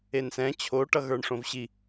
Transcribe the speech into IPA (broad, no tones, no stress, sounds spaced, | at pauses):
e n s ɛ̃ t͡ɕʰ o ʈ ʌ ɣ ə˞ ɳ ʂ õ v ɕ i